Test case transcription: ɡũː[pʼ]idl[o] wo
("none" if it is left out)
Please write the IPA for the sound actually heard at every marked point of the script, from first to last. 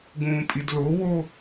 pʼ, o

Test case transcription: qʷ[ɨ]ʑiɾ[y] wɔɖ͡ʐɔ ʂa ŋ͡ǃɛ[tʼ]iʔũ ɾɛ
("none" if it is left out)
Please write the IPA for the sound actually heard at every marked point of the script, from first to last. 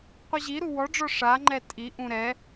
ɨ, u, tʼ

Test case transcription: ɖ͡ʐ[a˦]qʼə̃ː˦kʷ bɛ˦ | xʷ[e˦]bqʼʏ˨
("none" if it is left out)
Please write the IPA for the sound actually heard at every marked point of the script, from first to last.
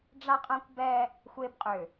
a˦, e˦

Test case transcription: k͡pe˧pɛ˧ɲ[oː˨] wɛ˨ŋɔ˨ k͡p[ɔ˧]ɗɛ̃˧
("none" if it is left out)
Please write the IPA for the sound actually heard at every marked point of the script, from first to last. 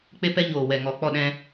oː˨, ɔ˦˨

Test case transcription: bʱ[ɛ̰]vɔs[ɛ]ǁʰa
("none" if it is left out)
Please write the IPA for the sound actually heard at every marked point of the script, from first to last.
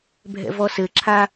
ɛ̰, ɘ

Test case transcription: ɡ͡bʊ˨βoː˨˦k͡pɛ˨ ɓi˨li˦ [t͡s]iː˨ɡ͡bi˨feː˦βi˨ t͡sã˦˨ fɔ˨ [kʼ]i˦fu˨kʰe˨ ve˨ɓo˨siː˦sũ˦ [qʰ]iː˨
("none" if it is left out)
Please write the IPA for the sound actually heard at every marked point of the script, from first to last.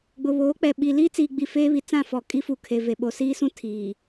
t͡s, kʼ, tʰ

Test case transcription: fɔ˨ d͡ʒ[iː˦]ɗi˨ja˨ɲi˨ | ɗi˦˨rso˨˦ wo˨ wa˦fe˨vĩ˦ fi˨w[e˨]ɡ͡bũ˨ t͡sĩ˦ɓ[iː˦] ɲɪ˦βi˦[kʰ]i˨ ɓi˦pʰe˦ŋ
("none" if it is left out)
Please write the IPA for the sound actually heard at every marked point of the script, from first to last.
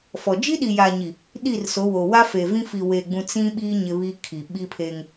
i˦, e˨, iː˦, kʰ

